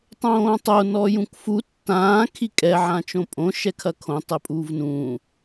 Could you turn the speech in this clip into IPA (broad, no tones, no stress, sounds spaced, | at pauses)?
tˤ õː tˤ o n ɔ j ũ k f u tː ãː kʰ i kʼ ɛ ʕ ã t͡ʃ õ pʼ õ ʃ ɛ kʰ ɐ kʰ õ tˤ ɘ pʼ uː v n ũː